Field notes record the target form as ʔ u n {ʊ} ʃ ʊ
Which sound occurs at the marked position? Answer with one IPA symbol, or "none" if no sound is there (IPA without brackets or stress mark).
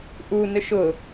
ɵ